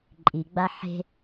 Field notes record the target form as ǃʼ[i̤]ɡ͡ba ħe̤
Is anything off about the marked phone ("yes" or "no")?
yes